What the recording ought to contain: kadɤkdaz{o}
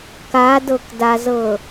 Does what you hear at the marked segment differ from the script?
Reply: yes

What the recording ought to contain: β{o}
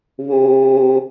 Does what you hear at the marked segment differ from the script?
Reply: yes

